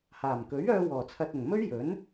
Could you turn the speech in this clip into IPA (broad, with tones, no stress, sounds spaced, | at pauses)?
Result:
h aː˨˩ m k ɵ˨˥ ɥ œː˧ w ɔː˨˩ t͡sʰ ɐ˨ t̚ ʊ˨˩ ŋ m ɵ˥ ɥ j ɵ˨˥ n